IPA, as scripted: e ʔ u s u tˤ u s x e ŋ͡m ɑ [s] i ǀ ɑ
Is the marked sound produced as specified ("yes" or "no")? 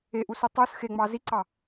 no